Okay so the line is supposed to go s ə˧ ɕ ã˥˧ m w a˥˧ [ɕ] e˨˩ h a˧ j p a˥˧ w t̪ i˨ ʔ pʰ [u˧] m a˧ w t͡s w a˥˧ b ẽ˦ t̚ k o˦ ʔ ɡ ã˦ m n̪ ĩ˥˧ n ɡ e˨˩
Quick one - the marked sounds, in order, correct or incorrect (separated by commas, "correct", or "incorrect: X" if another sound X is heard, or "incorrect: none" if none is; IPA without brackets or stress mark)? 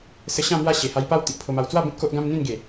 correct, incorrect: o˧